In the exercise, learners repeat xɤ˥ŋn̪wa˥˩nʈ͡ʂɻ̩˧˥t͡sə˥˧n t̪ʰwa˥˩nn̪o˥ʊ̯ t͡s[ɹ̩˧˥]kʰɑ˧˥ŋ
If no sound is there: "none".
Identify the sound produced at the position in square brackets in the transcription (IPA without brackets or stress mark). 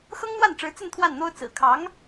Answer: ɹ̩˨˩